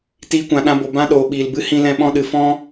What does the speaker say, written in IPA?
t iː˧ kʷ ã˨ ɗ ã˧ b o˨ b ã˦ ɗ oː˨ ɓ iː˨ l b ɨ˦ h ĩ˧ l ɛ̃˧ ɓ ɔ̃˧ ɗ ɨ˨ f ɔ̃˦

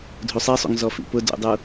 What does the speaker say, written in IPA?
dʱ u sˤ i sˤ ṵ ŋ z ɔ f ḭ p ʊ d ṵ dˤ u

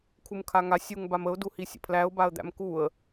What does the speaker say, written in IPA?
kʰ u m kʰ a ŋ a sʲ u ŋ b a m ə ʊ̯ d u h i sʲ ə̰ pʰ l æ ʊ̯ b a ə̯ d̪ æ̰ m k u ə̯

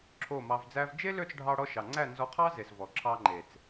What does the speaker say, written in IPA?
ǁʰ o˦˨ m ɑ˧ v d͡z æ˦ v d͡ʒ e˦ l ø˦˨ t͡s ɖʱ ɑ˧ ɽ ɔ˧ ʃ ɑ˨ ŋ͡ǀ æ˦˨ n z ɔ˧ qʰ ɑ˦ z e˨ s v ɔ˨ ǁʰ ɑ˧ ŋ͡ǃ e˨ t͡s

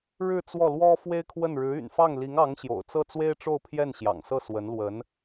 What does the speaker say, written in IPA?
ɻ ɻ̩˥˧ t͡s w ɔ˥˩ l w ɔ˥ f w e˥ ɪ̯ kʰ w ə˥˩ n ɻ ɻ̩˧˥ y̰˨˩ n f ɑ˥˩ ŋ l i˧˥ ŋ ɑ˧˥ ŋ ɕ j o̰˨˩ ʊ̯ t͡s ɤ˥˩ t͡s w e˥ ɪ̯ ʈ͡ʂ o˥˧ ʊ̯ pʰ j ɛ˥˩ n ɕ j ɑ̰˨˩ ŋ s ɤ˥˩ s w ə˧˥ n l w ə˧˥ n

